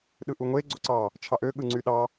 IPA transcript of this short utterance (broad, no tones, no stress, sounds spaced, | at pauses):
ɗ ɯ ʔ u ŋʷ e ɡ͡ǀ o ǀ ɑ | t͡ʃʰ ɑ ʔ ø ɠ ɯ ŋ͡ǀ y ɗ ɑ